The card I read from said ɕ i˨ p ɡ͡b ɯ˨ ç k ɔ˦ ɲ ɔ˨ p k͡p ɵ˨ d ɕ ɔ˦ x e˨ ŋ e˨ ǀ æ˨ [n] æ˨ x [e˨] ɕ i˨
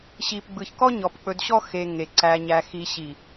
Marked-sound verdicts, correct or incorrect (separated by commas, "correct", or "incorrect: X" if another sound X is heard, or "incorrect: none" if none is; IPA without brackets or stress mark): incorrect: ɲ, incorrect: i˨